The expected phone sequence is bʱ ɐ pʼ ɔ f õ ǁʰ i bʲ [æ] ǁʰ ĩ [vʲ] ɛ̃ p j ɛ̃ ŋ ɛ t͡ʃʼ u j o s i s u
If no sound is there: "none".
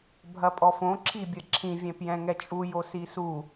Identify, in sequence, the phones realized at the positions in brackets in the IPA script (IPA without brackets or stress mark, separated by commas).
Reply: ɐ, vʲ